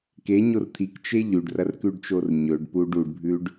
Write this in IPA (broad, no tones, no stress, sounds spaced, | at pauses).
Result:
k e ɲ o r t̪ʰ i k t͡ʃ e ʎ ʉ ɖ r ɐ r k ʉ ɖ t͡ʃ o r ɲ ɵ ɖ p u ɖ u ɖ bʱ ʉ ɖ